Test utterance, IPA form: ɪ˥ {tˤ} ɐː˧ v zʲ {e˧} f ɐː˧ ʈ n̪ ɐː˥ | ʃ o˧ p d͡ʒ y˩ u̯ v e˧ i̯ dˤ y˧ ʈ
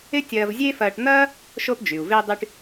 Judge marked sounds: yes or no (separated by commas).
no, no